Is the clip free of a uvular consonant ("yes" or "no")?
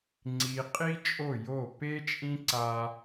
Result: no